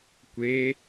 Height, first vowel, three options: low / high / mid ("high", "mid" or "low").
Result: mid